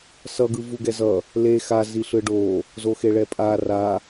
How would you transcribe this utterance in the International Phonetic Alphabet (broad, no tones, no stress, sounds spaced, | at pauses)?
s ʌ ɡ ɯ v u ɡ ɛ z ʌ | l e x a z i ɬ ɯ ɖ o | z o x e ɭ ɛ pʼ a r a